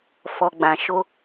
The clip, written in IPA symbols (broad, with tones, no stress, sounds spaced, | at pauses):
f ɔ˨ ɡ͡b ã˨ ʃ o˧